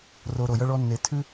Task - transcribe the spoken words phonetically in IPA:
r o˧ ɾ o˨ j ʌ˧ ɭ ɔ˧ nː e˧ tʰ ʉ˦

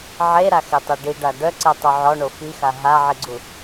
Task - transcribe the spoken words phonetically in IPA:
ʕ e ɾ a x e tˤ e ɖ i ɖ a ɖ œ ǀ ɛ tˤ ø ʕ ɔ ɳ o f i x a ɦ a ʕ i ɡ͡ǀ u

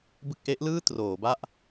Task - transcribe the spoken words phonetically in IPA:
b ɯ˥˩ k̚ ʔ e˦˥ ʔ l ɯː˥˩ t r oː˩˦ b a˥˩ ʔ

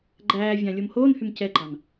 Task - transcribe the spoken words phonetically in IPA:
ɡ͡ǃ æː vʲ ɑ̃ lʲ o m h oː n h y m c ɛ ɡ͡ǃ ɑ n

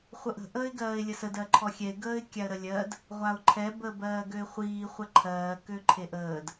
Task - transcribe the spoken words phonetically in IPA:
χʷ ə ʔ ə̤ ʔ əː ɪ̯ ɡ ɜː ɪ̯ lʲ ə s ə d ɜ ǃʰ ɔ xʲ ɛ ɪ̯ ɡ əː ɪ̯ kʲ a ə̯ ɾ ə lʲ ɜ d | ʁʷ a ʊ̯ ǃʰ ɛ b əː b ɜː ɡ ø ɪ̯ χʷ iː χʷ ɛ ǃʰ ɜː k ø ǃʰ e ʔ əː d

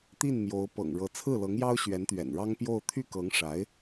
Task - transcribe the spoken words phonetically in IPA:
t̪ i˥˩ n m j o˧˥ ʊ̯ p ɤ̰˨˩ ŋ ɻ ɤ˧˥ t͡sʰ ɹ̩˥˩ l ɤ˧˥ ŋ j ɑ˥ ʊ̯ ɕ ɥ ɛ˧˥ n t̪ ɥ ɛ̰˨˩ n ɻ ɑ˥ ŋ p j o˥˧ ʊ̯ t̪ʰ y˥˩ k ɤ˧˥ ŋ ʂ a˧˥ ɪ̯

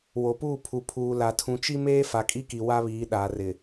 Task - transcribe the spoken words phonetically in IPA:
w o˨ p uː˦˨ pʰ u˨ pʰ uː˨ l a˨ tʰ ũ˨ t͡ʃ i˦ m eː˦ f a˨ kʼ i˦ k i˨ w a˦ β iː˨˦ ɗ aː˨ r ɪ˨

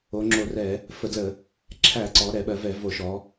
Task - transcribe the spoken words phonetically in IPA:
o˩˧ ŋ͡ǁ o˧˩˧ r ɛ˧˩˧ | f ə˧˩˧ d l ə˧˩˧ | ǁʰ æ˧˩˧ ǀ ɔ˩˧ ɾ ɛ˧˩˧ ɓ ɜ˩˧ v ɛ˧˩˧ v o˧˩˧ ʃ ɔ˩˧

